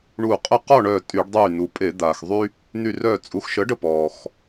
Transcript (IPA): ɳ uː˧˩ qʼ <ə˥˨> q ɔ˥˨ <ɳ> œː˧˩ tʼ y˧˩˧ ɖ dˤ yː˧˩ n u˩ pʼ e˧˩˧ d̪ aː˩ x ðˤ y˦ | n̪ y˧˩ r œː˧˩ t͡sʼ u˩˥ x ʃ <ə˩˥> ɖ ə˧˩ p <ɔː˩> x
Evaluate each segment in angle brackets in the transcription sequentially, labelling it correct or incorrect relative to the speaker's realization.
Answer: correct, correct, correct, correct

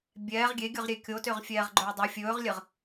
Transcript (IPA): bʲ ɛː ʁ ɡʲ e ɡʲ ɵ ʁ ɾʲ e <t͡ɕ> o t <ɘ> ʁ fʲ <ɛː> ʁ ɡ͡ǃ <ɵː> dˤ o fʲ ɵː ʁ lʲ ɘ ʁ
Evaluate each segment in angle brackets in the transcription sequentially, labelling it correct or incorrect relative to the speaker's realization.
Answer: incorrect, incorrect, correct, correct

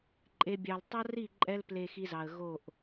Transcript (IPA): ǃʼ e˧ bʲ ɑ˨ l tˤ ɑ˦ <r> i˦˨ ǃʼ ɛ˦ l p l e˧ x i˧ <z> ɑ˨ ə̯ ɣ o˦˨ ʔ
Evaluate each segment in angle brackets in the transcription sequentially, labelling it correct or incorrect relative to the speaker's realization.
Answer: correct, correct

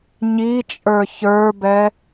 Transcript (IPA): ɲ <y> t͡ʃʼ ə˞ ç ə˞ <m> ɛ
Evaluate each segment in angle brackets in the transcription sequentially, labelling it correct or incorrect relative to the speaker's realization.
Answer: incorrect, incorrect

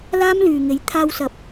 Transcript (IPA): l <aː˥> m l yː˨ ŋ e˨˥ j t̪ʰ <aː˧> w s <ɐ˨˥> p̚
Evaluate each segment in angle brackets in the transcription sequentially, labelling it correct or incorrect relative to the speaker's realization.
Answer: correct, correct, incorrect

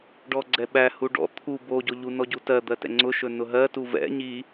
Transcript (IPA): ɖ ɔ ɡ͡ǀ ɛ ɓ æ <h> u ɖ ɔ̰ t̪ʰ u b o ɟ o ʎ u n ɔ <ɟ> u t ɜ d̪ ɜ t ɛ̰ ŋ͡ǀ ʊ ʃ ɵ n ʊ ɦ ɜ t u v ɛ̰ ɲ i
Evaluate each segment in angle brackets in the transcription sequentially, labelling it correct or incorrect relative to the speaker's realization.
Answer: correct, correct

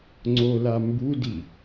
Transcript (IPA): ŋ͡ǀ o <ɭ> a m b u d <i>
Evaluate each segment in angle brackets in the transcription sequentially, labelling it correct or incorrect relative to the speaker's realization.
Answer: incorrect, correct

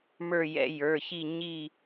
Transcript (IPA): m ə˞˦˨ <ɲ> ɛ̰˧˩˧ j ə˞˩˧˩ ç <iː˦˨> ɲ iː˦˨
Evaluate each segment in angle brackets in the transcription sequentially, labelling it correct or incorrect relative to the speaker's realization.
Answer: incorrect, incorrect

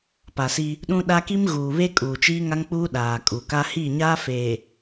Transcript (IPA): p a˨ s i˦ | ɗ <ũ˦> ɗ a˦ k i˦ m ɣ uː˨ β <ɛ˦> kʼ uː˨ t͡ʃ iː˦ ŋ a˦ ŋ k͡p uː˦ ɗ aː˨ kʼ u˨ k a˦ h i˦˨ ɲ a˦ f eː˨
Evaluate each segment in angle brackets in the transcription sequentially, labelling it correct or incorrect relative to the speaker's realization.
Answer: correct, incorrect

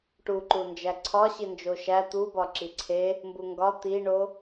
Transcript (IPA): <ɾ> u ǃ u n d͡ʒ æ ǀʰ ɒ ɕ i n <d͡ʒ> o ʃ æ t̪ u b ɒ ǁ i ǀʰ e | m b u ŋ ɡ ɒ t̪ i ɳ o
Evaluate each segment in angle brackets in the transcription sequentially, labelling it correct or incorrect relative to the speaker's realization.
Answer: incorrect, correct

